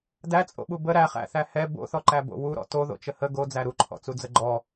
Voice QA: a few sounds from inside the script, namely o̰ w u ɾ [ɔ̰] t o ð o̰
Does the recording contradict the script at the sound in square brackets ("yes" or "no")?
no